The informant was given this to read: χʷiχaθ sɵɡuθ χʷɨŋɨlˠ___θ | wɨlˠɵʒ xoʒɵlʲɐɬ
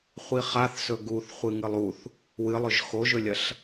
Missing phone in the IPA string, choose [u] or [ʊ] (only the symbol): u